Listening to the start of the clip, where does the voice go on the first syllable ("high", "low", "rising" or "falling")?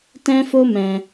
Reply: high